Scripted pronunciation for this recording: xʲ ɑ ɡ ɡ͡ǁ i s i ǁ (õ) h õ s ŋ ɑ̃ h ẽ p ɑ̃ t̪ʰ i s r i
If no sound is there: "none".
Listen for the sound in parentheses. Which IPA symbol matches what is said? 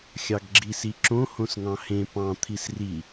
õ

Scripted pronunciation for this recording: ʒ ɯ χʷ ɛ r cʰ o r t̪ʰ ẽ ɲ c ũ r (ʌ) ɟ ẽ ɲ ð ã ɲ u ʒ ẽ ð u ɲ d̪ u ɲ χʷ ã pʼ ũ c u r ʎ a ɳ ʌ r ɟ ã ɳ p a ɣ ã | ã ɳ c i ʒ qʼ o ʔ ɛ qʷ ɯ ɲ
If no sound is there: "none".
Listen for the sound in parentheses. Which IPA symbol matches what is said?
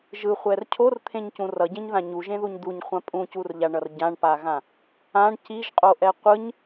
ʌ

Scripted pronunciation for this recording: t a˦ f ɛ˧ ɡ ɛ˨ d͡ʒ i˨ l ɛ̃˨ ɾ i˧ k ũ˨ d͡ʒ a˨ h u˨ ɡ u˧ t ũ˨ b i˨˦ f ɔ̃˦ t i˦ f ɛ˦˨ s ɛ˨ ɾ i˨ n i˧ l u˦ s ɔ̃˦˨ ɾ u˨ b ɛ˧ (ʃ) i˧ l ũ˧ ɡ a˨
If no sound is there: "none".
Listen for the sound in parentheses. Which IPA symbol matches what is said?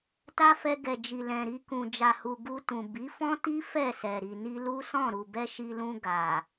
ʃ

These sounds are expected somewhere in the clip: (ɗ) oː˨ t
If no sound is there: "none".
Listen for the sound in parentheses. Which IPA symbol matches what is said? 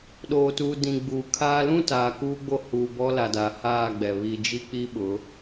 ɗ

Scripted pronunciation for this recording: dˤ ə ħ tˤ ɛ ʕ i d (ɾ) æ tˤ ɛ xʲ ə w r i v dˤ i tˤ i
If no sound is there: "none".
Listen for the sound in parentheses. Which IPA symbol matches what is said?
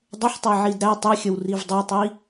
ɾ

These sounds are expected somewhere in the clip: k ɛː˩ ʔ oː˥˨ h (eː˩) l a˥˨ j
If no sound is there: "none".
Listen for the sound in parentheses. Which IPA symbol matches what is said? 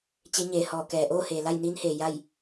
eː˩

